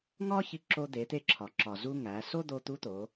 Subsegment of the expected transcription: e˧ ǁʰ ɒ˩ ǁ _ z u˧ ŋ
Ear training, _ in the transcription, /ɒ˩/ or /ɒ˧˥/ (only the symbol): ɒ˩